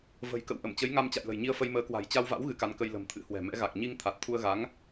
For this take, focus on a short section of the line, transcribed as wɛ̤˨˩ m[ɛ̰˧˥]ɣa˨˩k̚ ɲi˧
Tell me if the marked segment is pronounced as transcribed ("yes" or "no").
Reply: yes